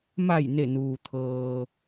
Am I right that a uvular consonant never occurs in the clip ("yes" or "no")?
yes